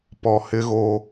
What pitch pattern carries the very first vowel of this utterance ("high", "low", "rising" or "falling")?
low